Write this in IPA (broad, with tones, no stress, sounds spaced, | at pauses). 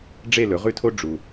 ɖ͡ʐ e˥˨ l ɵ˩˥ ʁ ʉ˥˨ tʰ o˥ ɖ͡ʐ u˨˩